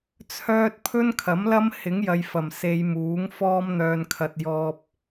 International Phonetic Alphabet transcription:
t͡sʰœː˥t̚ pʰɵ˥nkʰɐ˨˥mlɐ˥m hɪ˨˥ŋjɐ˨j fɐ˨˩m se˧jmuː˨˥ŋ fɔː˥mn̪œː˧n kʰɐ˧t̚ jɔː˧p̚

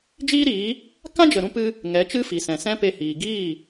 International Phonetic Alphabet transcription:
d͡ʒiː˦ɾiː˨˦ | kã˦d͡ʒə˨ɾũ˧ pɨ˦ | ŋɛ˨˦t͡ʃɨ˦fi˨sɛ̃˨ sɛ̃˦pe˧hiː˨ ɡiː˦˨

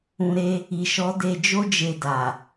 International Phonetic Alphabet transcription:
ũ˨ɾe˧ | i˨ʃɔ˨˦ de˧d͡ʒo˦d͡ʒe˧ da˨

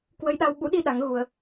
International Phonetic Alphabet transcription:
kwə˧jɗa˧w ɓṵ˧˥ɗi˧ ɗa˨˦ŋ ɣu˧ə̯

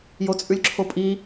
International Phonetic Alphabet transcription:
jot͡sʼʉlʲǁʰopʼi

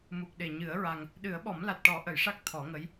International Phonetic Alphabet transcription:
mu˨˩k̚ɗe˨˩ɲɨ˨˩˦ə̯ ɹa˧ŋ | ɗɨ˨˩˦ə̯ɓɔ˨˩˦mla˨˩t̚ ʈɔ˨˩˦ʔə˨˩˨jʂa˦˥k̚ t̪ʰɔ˨˩˦ŋə˧˥j

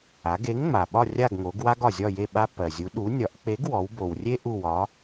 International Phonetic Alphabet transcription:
a˩˧ɡe˨˥ŋŋ͡ma˩ɓɒ˦˨ rʲa˦˨ɡŋo˩˧ɡwa˦ɡ ɒ˩zʲɒ˦˨je˦˨ ɓa˦pːɜ˩zʲu˨˥ ɗu˨˥ nʲɒ˨˥ʔ k͡pe˨˥ɡwɔ˩˧wbo˩wrʲe˦ ʔu˦˨wɒ˨˥

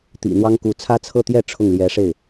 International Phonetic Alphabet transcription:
t̪ḭ˨˩n̪wɑ˥ŋku˧˥ t͡sʰä˥t͡sʰɤ˥˧t̪jɛ˥˧ ʈ͡ʂʰʊ˥˩ŋljɛ˧˥ʂe˥˩ɪ̯

